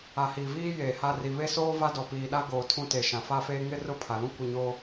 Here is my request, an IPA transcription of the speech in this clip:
a˨ h iː˨ v iː˦ j eː˨ h a˦˨ r i˨ β e˦ s oː˦ v a˦ d ɔ˨ p iː˨ ɗ a˦ ɡ oː˨ tʰ ũ˦ t e˨ ʃ ã˨ f a˦ f eː˦ ŋ ɪ˦ r ʊ˦˨ pʰ a˨ l ũ˦ kʷ ɪ˦˨ ɲ oː˦

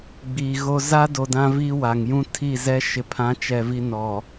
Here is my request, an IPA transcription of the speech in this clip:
ɡ͡b iː˨ ɣ o˦ z a˦ d o˨ d ã˦ v iː˦ w a˨ ŋ j ũ˦ tʰ i˦˨ z ɛ˦ ʃ ɪ˨ pʰ ã˨˦ t͡ʃ ɛ˨ v i˦ n ɔ˨

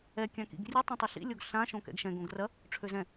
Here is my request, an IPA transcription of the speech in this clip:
ɛ kʲ ã k ḭ ɡ rʲ ɨ tˤ ĩ tˤ ɨ ɬ ḭ lʲ o ɡ ɬ ã ʃ õ k ɛ̰ ɡ ʃ ɛ̃ ɡ õ ɡ r ɐ | ʈ͡ʂʰ ø z ɛ̃

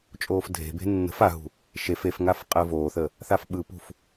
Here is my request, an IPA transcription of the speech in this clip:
t͡ʃʼ oː f dʱ e̤ b e̤ nː ə̤ f a ɦ ṳ | ʃ e f e f ŋ a f qʼ əː v oː θ ə | θ a f ɓ ɯ p ṳ f

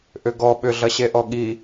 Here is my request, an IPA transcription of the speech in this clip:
ʔ ʏ ɡ ɔ ɓ ʏ ɮ ɐ ɕ e ʔ ɔ ɠ i

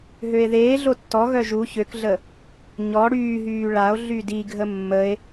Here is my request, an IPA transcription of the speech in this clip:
ɦ ø e̯ ð eː ɮ o tː ɔ ɣ œ ʒ u ç ø k ɮ ə | ɲ ɔ ɽ yː ɦ yː ɭ a o̯ ɮ y d i ɡʱ ə mː ə e̯

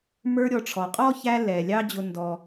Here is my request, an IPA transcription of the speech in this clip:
m ə˞˦ ɾʲ ɔ˨ ʈ͡ʂʰ ɔ˩ qʼ ɔ˥ ç æ˦ l ɛ˩ lʲ ɑ˦ d͡ʑ ʊ˩ n d ɔ˩

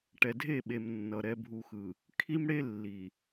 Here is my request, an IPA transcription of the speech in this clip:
ʈ ɛ˨ dʱ e˦˨ ɓ e˨ m nː ʌ˨ ɾ ɛ˨ bʱ u˨ x ɯ˨ | kʰ i˦ m ɽ e˦ lː i˨

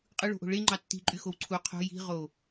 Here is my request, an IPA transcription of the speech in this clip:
qʼ ɯ ɭ o̤ ʔ o̤ ɭ e ŋ͡ǃ ɑ tː i̤ ǃʼ y x o w ǀʰ u qʰ o̤ j i̤ ʁ o

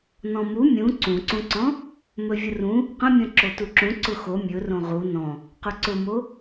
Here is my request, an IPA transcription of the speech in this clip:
n ɔ̃ m u mʲ ũ ǀ ũ ǀ ũ ǀ ɔ̃ | m ɵ vʲ ə r ũ | q ə̃ mʲ ɔ̃ ǁ o t u ǁ ũ ǀ ʊ x o mʲ ɵ r õ ʁ u n ɔ̃ | q ɵ ǀ ʊ m o

